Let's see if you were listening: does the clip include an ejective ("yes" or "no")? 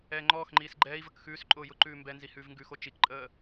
yes